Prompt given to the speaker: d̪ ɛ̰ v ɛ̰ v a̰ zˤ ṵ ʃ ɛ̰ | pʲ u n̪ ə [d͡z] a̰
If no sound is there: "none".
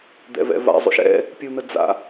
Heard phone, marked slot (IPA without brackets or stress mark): d͡z